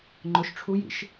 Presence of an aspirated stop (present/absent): present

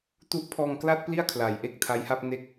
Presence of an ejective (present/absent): absent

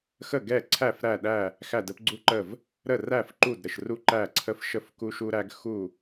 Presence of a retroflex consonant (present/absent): absent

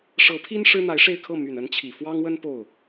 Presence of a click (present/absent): absent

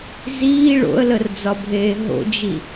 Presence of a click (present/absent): absent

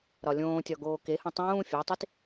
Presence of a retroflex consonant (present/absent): absent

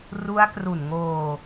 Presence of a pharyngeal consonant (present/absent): absent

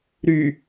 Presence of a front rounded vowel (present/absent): present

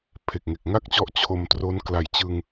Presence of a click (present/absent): absent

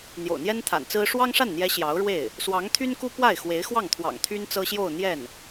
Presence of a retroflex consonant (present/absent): present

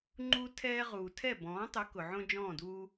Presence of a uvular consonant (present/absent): present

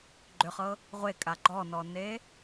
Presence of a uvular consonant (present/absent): present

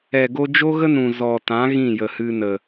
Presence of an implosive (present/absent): absent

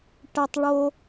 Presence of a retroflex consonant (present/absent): present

